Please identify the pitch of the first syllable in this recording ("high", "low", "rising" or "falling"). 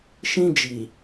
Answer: high